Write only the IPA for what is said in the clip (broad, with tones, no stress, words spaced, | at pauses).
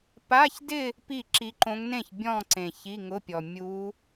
pa˧˥˧çdɪ˥˧ | pi˥˩ǁi˧˥ǃõ˧˥ŋ nẽ˥˩ç bʲɔ̃˥˧ǀẽ˨˩ çi˧˥˧ŋʊ˧˥˧pʲɔ˨˩ mʲu˧˥